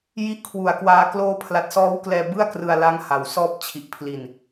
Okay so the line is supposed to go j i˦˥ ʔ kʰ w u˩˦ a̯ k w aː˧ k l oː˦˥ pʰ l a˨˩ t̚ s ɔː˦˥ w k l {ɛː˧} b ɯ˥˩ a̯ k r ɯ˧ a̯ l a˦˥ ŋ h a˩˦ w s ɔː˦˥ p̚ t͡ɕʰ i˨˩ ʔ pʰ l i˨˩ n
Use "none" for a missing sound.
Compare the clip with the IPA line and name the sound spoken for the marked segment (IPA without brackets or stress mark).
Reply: ɛː˧